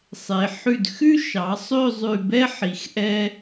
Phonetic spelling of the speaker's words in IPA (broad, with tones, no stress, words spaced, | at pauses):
sˤe˩˧ ħʉ˧˩dxʉ˥ ʃɑ˩˧ sˤø˥˧zˤʉ˧˩bɛ˥ħi˩˧x ʔɛ˥